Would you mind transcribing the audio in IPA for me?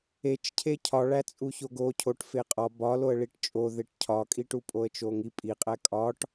e t͡ʃ cʰ e cʰ ɒ ɭ æ t͡sʼ u ç o ɡ o cʰ o ʈ f e qʼ ɒ b ɒ l o ə̯ ɭ i ʈ t͡ʃʼ o ð e ʈ cʰ ɒ kʼ i ʈ u pʼ o ə̯ t͡ʃ o ŋ i pʼ i qʼ æ kʼ ɒ ʈ

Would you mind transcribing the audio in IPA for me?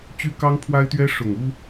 t͡ɕ y˦ k ɑ˦ ŋ pʰ w a˦ ɪ̯ t̪ ɥ ɛ˦ ʂ ʊ˨˩ ŋ u˦

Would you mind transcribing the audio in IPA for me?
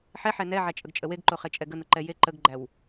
ħ ɛ ħ ɛ n ɛ ʕ æ t͡ʃʼ ə ɡ t͡ʃʼ ə w e ɡ ǃ o χ e t͡ʃʼ ɛ ɡ ə n ə ǃ ɛ j e ǃ ə ɡ ɡ͡ǃ æ w

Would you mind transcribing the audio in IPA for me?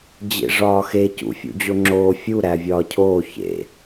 d͡ʑ ḛ ʐ ɒː x e c ṵ fʲ ṵ d͡ʑ o ŋ͡ǁ oː fʲ u ɾ æ vʲ ɒː cʰ oː ç ḛ

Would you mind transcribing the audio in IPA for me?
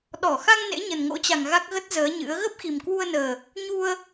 ɗ ɔ˧˩ x a˧ ŋ n ḛ˧˥ ɲ ə˨˩ n ŋ o̰˧˥ t͡ɕ a˨˩ ŋ ɣ a˦˥ k̚ ɣ ə˦˥ t̚ z əː˨˦ ɲ ɨ̰˧˥ ə̯ ɣ ə˦˥ p̚ x i˨˩ m k w u˧ ə̯ n əː˨˩ | ɲ u˧ ə̯

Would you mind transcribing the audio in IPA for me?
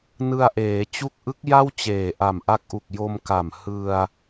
n ɯ˧ a̯ ʔ eː˩˦ t͡ɕ u˦˥ k̚ ʔ ɯ˦˥ k̚ j a˥˩ w t͡ɕ eː˨˩ ʔ a˨˩ m ʔ a˦˥ k̚ ʔ u˨˩ k̚ j o˧ m k a˨˩ m h ɯ˧ a̯

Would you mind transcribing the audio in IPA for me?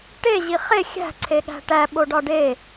ʈ e ʑ i χ e xʲ æ̤ ǀʰ e ɠ æ̤ ʈ æ ɓ o ɖ ɒ ɖ e

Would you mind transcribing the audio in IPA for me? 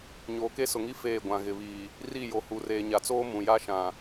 ɲ oː˨ k e˦ s ʊ˨ ŋ i˦ f eː˦˨ ɡʷ ã˨ ɣ ɪ˨ β iː˨ | r i˦˨ j o˨ h u˨ r eː˨ ɲ a˨ t͡s oː˦ m ũ˨ j a˦ ʃ ã˨

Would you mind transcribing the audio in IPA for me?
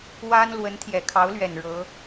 w a˥ n l w ə˧˥ n t̪ʰ j ɛ˨˩ kʰ ɑ˧˥ ʊ̯ l ɥ ɛ˨˩ n ɻ ɤ˧˥

